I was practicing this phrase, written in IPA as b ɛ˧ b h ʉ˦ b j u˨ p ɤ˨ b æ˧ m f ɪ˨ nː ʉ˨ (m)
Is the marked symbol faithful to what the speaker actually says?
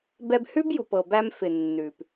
no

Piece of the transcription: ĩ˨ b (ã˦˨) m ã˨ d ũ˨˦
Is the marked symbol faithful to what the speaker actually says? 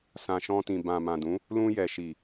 no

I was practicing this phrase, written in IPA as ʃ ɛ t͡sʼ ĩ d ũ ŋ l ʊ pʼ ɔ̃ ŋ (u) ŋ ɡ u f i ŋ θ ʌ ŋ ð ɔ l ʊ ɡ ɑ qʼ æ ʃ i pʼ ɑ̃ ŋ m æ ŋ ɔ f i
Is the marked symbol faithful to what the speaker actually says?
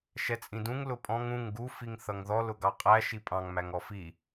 no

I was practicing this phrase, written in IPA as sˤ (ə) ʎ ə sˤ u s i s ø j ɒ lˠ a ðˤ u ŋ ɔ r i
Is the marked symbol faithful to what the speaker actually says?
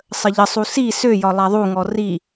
yes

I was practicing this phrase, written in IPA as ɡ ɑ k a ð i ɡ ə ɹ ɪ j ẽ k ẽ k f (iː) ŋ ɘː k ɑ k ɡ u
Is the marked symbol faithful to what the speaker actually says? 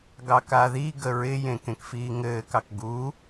yes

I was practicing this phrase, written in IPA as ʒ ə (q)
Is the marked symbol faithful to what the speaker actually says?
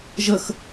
no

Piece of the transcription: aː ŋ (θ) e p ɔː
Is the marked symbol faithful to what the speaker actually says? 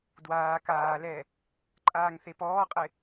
yes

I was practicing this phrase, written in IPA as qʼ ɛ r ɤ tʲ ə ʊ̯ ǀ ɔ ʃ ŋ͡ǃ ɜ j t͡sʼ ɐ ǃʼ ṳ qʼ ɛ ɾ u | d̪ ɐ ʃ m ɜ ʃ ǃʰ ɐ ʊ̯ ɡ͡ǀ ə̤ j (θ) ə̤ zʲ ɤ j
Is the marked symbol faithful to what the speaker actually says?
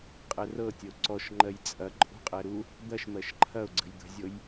no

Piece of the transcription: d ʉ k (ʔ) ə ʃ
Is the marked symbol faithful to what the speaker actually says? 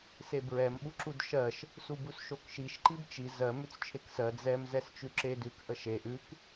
yes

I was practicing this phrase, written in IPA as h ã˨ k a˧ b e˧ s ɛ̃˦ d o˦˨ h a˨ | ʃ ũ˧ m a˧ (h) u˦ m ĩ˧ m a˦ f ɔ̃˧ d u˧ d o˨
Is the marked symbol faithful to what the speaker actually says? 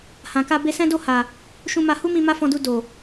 yes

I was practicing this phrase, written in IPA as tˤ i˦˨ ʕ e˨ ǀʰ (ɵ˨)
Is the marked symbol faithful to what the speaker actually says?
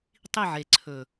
yes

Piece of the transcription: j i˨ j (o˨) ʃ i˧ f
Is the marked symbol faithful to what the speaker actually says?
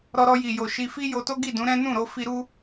yes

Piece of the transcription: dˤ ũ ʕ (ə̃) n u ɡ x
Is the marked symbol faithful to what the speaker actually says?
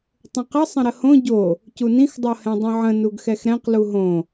yes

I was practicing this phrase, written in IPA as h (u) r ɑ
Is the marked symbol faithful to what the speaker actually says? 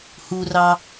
yes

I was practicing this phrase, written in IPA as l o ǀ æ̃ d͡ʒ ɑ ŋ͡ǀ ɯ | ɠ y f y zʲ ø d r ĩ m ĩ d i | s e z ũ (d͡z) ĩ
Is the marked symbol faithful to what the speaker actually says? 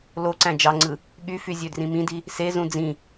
yes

